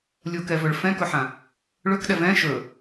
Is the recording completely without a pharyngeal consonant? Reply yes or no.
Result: no